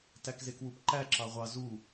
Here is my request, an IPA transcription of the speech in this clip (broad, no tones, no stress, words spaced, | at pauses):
tækzekwupǃæ ǁɑʁʷɑ zu